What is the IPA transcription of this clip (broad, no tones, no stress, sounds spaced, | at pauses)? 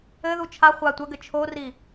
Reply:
ɘ ð u t͡ʃʰ a χʷ a tʷ ɐ ɡ ɘ t͡ʃʰ o r i